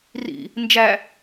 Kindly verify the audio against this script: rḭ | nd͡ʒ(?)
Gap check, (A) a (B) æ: B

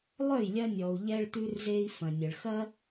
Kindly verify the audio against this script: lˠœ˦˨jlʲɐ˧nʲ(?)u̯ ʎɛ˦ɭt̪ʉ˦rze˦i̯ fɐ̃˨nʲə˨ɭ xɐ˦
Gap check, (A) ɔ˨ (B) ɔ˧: A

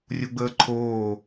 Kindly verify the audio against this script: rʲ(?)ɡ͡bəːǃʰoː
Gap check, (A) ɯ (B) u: B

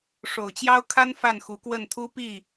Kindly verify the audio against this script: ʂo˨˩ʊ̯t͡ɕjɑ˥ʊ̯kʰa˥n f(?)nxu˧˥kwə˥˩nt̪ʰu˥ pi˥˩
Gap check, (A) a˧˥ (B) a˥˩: B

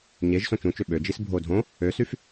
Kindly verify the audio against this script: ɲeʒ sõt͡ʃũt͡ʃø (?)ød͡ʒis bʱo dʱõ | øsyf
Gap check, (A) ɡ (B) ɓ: B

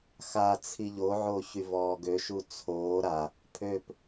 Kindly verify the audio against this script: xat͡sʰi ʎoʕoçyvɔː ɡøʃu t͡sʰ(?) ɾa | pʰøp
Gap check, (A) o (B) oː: B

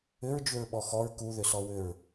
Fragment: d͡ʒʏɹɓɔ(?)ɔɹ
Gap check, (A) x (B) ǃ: A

